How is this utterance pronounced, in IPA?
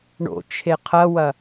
ɳ o̰ t͡ʃʰ e qʰ ɐ w ɐ

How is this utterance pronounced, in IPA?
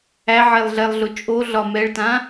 æ ʕ e lˠ ɮ ɛ lˠ ɮ ʊ t͡ʃʼ o ɮ ɒ m ɛ ɭ t ã

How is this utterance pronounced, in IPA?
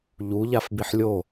ʎ u ʎ a f b i ħ lʲ o

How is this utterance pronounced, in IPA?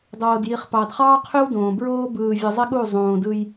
dˤ oː˨ d j i˨ χ p ɑ˨ d χ ɑː˦ qʰ ø˦ w d õː˨ b ɹ oː˦ b ɯː˨ vʲ ɯ˨ zˤ e˦ ɠ u˦˨ zˤ õː˨ d ɯ˦ j

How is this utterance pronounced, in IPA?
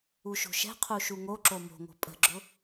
u ʃ o̤ ʃ ɛ̤ qʰ u ʃ u ŋ o ǁ o m o̤ ŋ o̤ pʼ ə̤ ɡ͡ǁ ʊ

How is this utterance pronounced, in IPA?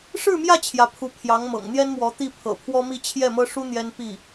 ʂ ɻ̩˥˧ m j ä˥˩ t͡ɕʰ j ä˧˥ pʰ u˧˥ pʰ j ɑ˧˥ ŋ m ɤ̰˨˩ ŋ n̪ j ɛ˥ n m w ɔ˧˥ t̪ i˥˩ pʰ ɤ̰˨˩ pʰ w ɔ˥ m i˥˧ t͡ɕʰ j ɛ˥˩ m ɤ˥ ʂ u˥ n̪ j ɛ˥ n p i˥˩

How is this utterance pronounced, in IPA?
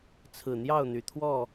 t͡sʰ ɹ̩˨˩ n̪ j ɑ˥˨ ʊ̯ n̪ y˨˩ t̪ʰ w ɔ˥˨

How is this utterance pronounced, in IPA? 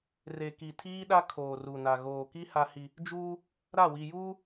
r e˨ k i˨ tʰ iː˦ ɗ a˦ kʰ oː˨ r u˨ n a˨ ɣ oː˨ k i˦ h a˦ h i˦ | d͡ʒ uː˦ | ɾ a˦˨ w i˨ j uː˦

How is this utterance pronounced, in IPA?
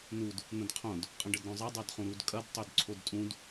n u d | n̪ ə̃ d qʰ õ d | qʼ ə̃ ɖ ə d ɾ õ zˤ a dˤ a d χ ũ ɾ u d kʼ ɐ d tˤ ø d ǀʰ o d tʼ ũ d

